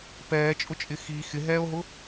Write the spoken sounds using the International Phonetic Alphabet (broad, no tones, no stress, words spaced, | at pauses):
pɛːt͡ʃʼʊt͡ʃʼɪ xi xɪɦɛːo̯ɦʊ